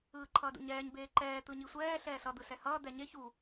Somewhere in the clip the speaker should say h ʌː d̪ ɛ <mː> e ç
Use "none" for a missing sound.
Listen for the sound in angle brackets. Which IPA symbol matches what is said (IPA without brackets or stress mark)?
ɲ